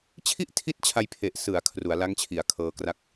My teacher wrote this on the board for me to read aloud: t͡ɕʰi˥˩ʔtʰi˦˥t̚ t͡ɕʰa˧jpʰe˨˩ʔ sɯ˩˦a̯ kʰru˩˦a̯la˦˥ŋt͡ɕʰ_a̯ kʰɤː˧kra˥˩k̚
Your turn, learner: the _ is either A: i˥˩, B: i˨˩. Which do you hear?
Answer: B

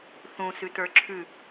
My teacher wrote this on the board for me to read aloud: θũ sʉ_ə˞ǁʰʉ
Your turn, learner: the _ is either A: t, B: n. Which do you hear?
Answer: A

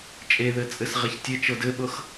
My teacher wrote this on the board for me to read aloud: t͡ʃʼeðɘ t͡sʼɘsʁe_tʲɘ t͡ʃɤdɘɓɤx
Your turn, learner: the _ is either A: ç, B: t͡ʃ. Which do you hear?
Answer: A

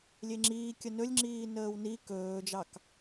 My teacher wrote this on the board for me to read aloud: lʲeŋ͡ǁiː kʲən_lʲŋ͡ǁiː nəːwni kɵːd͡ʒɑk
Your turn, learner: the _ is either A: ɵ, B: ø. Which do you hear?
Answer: A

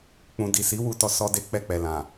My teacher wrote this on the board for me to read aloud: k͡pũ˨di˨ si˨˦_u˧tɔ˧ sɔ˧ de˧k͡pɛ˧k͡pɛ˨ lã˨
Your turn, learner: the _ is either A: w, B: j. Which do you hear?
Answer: A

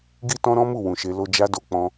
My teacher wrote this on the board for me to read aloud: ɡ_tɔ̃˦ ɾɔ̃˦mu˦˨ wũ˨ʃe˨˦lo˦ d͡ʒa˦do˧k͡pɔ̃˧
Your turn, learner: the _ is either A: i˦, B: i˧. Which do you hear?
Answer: A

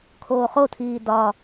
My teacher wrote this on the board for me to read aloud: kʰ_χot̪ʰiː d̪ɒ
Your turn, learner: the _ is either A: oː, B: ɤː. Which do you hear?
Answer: A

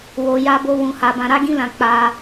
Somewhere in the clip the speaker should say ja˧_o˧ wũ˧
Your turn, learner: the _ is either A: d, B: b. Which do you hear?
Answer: B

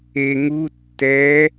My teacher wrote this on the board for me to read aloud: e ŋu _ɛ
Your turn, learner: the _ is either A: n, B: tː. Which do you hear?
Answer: B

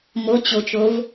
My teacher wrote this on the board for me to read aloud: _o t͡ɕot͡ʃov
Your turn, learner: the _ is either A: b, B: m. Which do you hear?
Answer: B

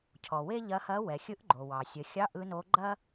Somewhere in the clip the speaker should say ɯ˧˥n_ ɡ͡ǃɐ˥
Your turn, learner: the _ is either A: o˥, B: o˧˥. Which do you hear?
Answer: B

